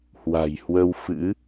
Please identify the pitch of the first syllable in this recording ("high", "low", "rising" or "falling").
low